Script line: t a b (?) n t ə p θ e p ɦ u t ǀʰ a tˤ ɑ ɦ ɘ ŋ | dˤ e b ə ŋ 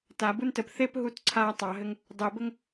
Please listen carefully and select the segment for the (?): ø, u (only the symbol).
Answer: u